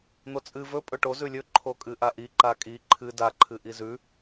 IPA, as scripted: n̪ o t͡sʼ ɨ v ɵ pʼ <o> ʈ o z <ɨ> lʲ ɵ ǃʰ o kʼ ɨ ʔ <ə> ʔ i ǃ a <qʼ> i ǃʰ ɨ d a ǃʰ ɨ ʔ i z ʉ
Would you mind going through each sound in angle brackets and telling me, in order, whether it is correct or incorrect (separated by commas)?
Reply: incorrect, incorrect, incorrect, incorrect